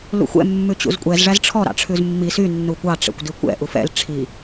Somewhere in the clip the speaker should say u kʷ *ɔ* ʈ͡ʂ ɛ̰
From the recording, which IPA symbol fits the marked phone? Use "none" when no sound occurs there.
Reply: ɑ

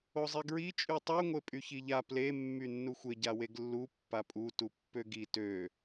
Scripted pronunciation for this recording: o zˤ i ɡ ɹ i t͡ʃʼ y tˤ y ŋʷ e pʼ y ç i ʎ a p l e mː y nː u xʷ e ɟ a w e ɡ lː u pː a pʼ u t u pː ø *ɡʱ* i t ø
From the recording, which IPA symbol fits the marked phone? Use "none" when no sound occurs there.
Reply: ɡ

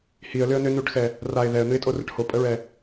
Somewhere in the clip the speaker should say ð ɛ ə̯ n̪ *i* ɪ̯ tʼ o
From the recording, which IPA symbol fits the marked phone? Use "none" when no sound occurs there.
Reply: ɨ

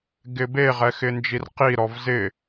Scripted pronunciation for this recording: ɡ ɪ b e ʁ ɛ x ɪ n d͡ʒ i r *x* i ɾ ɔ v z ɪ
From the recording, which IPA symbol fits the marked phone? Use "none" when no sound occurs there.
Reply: q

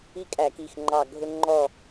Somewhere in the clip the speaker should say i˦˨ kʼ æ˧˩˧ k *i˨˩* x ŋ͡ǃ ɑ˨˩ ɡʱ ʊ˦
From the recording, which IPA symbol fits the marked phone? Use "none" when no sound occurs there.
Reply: i˨˩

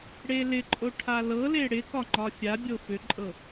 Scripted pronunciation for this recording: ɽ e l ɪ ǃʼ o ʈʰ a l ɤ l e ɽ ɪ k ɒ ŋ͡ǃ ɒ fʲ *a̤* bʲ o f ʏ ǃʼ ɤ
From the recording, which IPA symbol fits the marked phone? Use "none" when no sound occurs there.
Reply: a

